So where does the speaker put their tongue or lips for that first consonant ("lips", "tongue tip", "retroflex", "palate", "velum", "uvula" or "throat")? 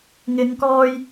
velum